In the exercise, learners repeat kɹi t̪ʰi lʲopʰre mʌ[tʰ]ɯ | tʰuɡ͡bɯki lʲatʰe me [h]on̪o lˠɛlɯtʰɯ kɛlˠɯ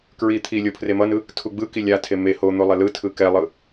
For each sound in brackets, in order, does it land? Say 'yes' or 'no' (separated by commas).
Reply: no, yes